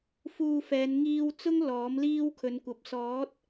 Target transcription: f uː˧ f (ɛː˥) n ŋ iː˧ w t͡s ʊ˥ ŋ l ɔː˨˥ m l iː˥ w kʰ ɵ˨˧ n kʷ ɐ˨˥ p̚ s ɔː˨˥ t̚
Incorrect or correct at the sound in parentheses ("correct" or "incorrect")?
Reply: incorrect